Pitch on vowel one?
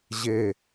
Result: falling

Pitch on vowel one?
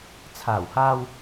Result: low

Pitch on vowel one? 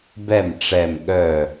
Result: falling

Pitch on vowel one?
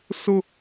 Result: high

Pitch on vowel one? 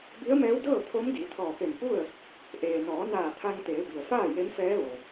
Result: rising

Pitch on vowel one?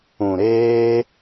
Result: low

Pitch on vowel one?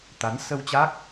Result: rising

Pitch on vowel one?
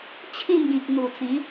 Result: falling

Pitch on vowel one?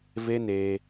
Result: high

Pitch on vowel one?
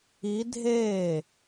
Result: rising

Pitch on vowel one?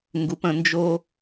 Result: rising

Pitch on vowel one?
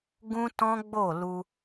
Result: high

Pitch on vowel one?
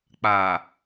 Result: low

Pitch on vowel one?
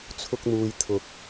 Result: high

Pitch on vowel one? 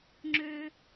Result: high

